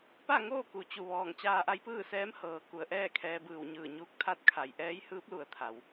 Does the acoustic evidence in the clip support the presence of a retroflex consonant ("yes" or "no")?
no